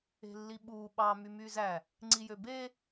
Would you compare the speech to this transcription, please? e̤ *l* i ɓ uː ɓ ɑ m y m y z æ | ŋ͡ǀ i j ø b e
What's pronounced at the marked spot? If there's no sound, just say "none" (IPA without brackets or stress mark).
lː